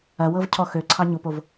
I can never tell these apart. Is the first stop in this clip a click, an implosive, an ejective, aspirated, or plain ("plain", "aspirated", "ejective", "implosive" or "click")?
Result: aspirated